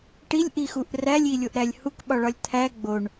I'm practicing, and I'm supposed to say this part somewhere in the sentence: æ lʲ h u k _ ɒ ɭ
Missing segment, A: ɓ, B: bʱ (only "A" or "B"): A